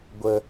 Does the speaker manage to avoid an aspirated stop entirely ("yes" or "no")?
yes